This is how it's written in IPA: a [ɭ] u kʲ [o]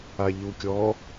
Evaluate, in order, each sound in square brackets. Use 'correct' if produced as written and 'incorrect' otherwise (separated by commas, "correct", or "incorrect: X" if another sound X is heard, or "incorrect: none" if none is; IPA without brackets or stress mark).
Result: incorrect: ʎ, incorrect: ɔ